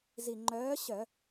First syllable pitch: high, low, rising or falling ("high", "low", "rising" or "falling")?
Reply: low